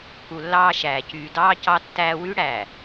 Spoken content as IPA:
k u˨ lː ɑː˦ ʃ æː˨ c yː˨ d ɑː˦ c ɑ˦ tː æː˦ w y˦ ɽ æ˨

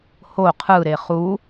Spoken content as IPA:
h o qʰ ɯ ɾ e χ u

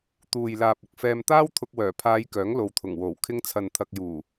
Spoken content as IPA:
t̪ uː˨ j l aː˨ p̚ ʊ˨ k̚ f ɛː˧ m t̪ aː˥ w t̪ʰ ʊ˧ k̚ w œː˨˩ pʰ aː˨˧ j k œː˨˥ ŋ l o˨ w t̪ʰ ʊ˨˩ ŋ w o˨˩ w kʰ ɪ˧ ŋ t͡sʰ ɐ˨ n t̪ʰ ɐ˨ k̚ j uː˨˩

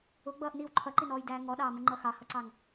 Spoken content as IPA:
ʊ ɡ͡b ʌː ʔ n iː w ǃʰ ʌ ǃ i n ɔː j d æː ŋ ɔ ɗ ɑː m ʊ ŋ͡ǃ ʌ x ɑ h ʌ ǀ ɑ ŋ

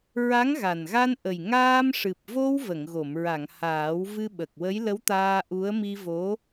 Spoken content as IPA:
ɹ a˧˥ ŋ ɣ a˨˩ n ɣ a˧ n ʔ ə˨˩ j ŋ aː˧ m ʂ ɨ˨˩ p̚ v o˧ w v ə˨˩˨ ŋ ɣ o˨˩˨ m ɹ a˨˩˨ ŋ h aː˨˩˦ w v ɨ˧ ɓ ə˨˩ k̚ w ə˧˥ j l ə˧˥ w t̪ aː˧ ʔ u˧˥ ə̯ m i˧ v o˧˥

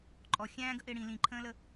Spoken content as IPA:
ǃʼ ɔ xʲ æ̃ː ɡ ə ʔ ɪː ɽ ĩ l ĩ ǃʰ ə̃ː l ə

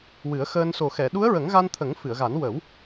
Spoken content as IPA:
w ɨ˨˩˦ ə̯ x əː˧ n s o˨˩ x ɛ˨˩˨ ɗ u˧˥ ə̯ ɹ ə˨˩˦ ŋ ɣ a˧ n t̪ʰ ə˨˩˦ ŋ f ɨ˨˩˨ ə̯ ɣ a˨˩˦ n w ə˨˩˦ w

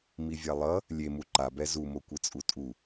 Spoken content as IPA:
m i vʲ a lˠ ʌ | lʲ e m u ǃ a b ɛ z u m o kʷ ɯ t͡sʼ u tʼ u

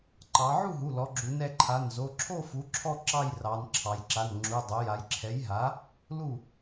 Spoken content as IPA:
ǃ ɑ˩˧ ʕ u˥˩ ɦ u˩˧˩ l ɔ˩˧ ɡ͡ǁ u˩˧ n ɛ˩˧˩ ǃʰ a˩˧˩ n z o˩˧˩ ǁʰ o˥˧ f u˩˥ ǁʰ ɔ˥˧ ǁ ɑ˥˧ j r ɑ˩˧ n ǁʰ ɑ˩˧ j ǁ a˩˧˩ n ŋ͡ǁ u˩˧˩ dˤ o˩˥ j a˩˧ j ǁʰ ɛ˩˥ j ɦ a˩˥ | l u˥˩

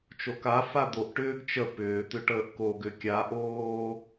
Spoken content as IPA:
t͡ʃ o k a f a d̪ o ʔ ʈ ʏː ɡ t͡ʃ ə p ʏː t̪ ʏ ʈ əː ʔ k o ɡ ʏ kʲ a ʔ oː

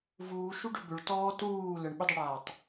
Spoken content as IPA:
v uː ʃ u ɖ ʏ b ʏ ɭ t ɔː t uː l ə ɳ ɓ ʏ dˤ ʏ ɽ aː tˤ

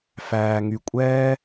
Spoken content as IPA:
f æː˧ ŋ y˧ kʷʼ ɛː˦

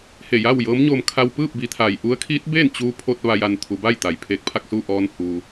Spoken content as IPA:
h e˧˩ j a˥˨ w j ɤː˧˥ m ɲ o˧ m kʰ a˧ w p ɯː˥˨ p̚ b i˩˧ t̪ʰ aː˩ j ʔ u˧˥ ə̯ kʰ iː˧˥ t̚ b eː˥˨ n t͡ɕ uː˧ pʰ o˧ t̚ ʋ a˧ j a˧ n t̪ʰ u˩˧ b aː˥˨ j t̪ a˩ j pʰ eː˧ k̚ pʰ a˥˨ k̚ s u˥˨ ʔ ɔː˧ n h uː˩

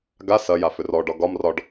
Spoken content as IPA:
ɡ a s ɐ j a f ʏ r ɔ ɖ ɒ ɡ ɒ m r ɒ ɖ

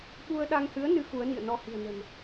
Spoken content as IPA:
ɓ u˧ ə̯ ɗ a˧ ŋ h ɨ˨˦ ə̯ n ɨ˨˦ x u˨˦ ə̯ n ḭ˧˨ ə̯ n ɔ˧ h i̤˨˩ ə̯ n ə̤˨˩ n

